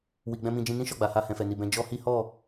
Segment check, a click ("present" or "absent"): absent